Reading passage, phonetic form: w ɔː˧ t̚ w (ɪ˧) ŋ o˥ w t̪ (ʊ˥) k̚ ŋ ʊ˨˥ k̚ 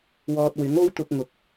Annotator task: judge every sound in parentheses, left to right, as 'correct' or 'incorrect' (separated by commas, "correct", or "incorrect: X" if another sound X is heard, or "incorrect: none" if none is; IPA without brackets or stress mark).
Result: incorrect: ɪ˨˥, incorrect: ʊ˧